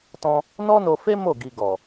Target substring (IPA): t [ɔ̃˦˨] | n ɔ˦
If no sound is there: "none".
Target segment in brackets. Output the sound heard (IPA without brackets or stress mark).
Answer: ɔ̃˧